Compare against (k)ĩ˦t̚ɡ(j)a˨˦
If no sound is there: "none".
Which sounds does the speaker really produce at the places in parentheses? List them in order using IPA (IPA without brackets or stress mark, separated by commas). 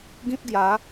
ɡ, j